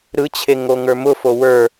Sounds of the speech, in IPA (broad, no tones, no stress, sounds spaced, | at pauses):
ɾ ɯ t͡ɕʰ e ŋ o ŋ ə˞ m ʊ f o w ə˞